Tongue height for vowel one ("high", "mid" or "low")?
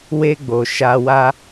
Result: mid